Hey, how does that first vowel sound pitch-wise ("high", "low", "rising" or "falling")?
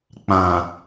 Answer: low